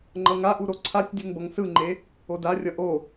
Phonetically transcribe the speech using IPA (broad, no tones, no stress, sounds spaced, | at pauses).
ŋ͡ǃ ʌ ŋ a ʔ u ɾ o ǀʰ a tʲ dʲ u ŋ b ʌ ŋ s ɯ ŋ͡ǃ e | o d a rʲ ʌ ʔ o